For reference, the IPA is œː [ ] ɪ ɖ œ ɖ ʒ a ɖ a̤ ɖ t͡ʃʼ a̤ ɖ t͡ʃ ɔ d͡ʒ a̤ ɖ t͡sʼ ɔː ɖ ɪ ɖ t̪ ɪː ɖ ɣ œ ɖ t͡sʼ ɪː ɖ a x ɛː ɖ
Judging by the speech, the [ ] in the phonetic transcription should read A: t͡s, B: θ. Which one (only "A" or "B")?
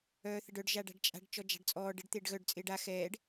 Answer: B